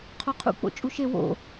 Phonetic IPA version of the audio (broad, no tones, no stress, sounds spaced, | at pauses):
qʰ o qʰ ṵ k͡p o̰ t͡ʃʼ u ʃ e w o̰